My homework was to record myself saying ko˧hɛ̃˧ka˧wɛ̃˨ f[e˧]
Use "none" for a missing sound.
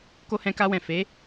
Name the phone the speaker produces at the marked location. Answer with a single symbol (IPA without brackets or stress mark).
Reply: e˨˦